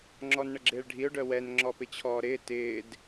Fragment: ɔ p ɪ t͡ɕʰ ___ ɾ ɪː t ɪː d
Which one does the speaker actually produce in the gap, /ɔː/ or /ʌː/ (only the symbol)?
ɔː